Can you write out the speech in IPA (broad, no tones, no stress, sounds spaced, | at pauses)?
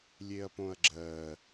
lʲ e ɐ̯ p õ ɐ̯ ɡ͡ǁ ɜ